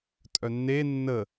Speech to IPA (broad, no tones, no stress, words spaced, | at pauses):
tʼœnːe nːə